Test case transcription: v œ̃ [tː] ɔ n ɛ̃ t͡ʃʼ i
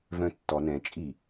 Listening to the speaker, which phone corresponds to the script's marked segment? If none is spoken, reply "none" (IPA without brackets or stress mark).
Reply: tː